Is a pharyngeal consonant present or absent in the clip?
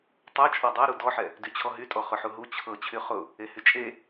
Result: present